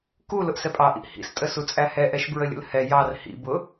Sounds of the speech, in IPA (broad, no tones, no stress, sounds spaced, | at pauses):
k u l ʊ ʔ s ɛ pʼ ɑ ʔ ḭ ʔ h ḭ s tʼ ə s u t͡sʼ æ h ɛ ʔ ɛ ʃ b ɹ ə lʲ ə̰ l h ɛ j ɑ r h ḭ b ʊ